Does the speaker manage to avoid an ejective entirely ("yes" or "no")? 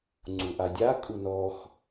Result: no